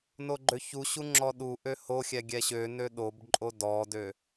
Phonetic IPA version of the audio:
n o ɡ͡ǃ ø ç u ɕ u ŋ͡ǁ ɔ ɗ u ʔ ø h o xʲ ɛ ɡʲ ɛ ɕ ø n ø ɗ o b ǃʼ o d ɔ d ø

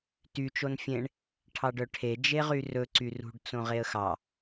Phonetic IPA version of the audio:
t y t͡ʃ o n fʲ ẽ ɳ | ʈʰ ɑ ɖ œ ʈʰ e d͡ʒ e ʁ y r ɵ ǀ y r ṳ ɖ t͡s õ ʁ e ə̯ x ɑ

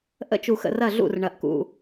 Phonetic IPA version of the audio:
ʔ ə̰˧˥ t͡ʃ u˩ x ə̰˧˩ r ɐ˧˩ ɮ ṵ˧˩ r ɳ ɐ˩ ʔ k ṵ˩

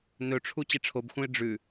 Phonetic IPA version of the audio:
n ɵ ʈ͡ʂʰ u t͡ɕ e ʈ͡ʂʰ o b x ũ ɪ̯ ɖ͡ʐ ʉ

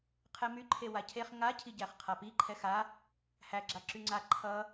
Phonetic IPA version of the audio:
qʰ ɛ m y ǃʰ e w a cʰ e χ ŋ a cʰ i ɟ æ χ qʰ a p i ǃʰ ɛ x a | h æ ɡ͡ǁ a ǁ y ŋ͡ǀ a ǃʰ ʌ

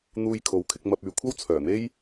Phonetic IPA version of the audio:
n̪ uː˧ j kʰ o˨˧ w kʰ ɪ˧ k̚ m ɐ˧ p̚ yː˨˧ kʷʰ ɐ˥ w t͡sʰ œː˨˩ n̪ e˥ j

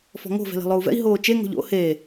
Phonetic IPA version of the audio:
f ɔ̤ ŋ o̤ v ɛ̤ l e̤ lˠ o u̯ v ɛ̰ i̯ ɦ oː t͡ʃ e ŋ o̤ ʎ o̰ h eː

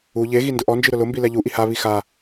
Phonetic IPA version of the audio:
u ʎ e ɣ i n d ʊ ʔ ɔ n d͡ʒ i ɾ ʊ l ʊ m b i l ɛ ʎ u ʔ i h a β i x a

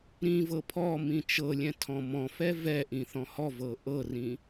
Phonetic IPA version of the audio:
ɾ ĩ v ɤ pʰ ɔ m ĩ t͡ʃ ɤ lʲ ɛ̃ tʰ ɔ̃ m ɔ̃ f ɛ v ɛ ʔ ĩ θ ɔ̃ h ɔ v ɤ ʔ ɤ r ĩ

